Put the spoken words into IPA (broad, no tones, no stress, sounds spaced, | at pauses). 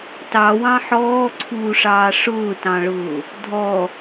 t ɑ w ɑ̃ ħ ɔː ǀʰ uː ʂ ɑː ʂ ʊː t ɑ̃ ɭ ʊː | dʱ ɔ